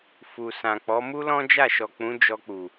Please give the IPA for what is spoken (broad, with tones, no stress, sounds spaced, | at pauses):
f u˨ s ã˨ k͡p ɔ˨˦ m u˦ l ɔ̃˦ d͡ʒ a˦˨ ʃ ɔ˨ k͡p ũ˨˦ d͡ʒ ɔ˧ k͡p u˨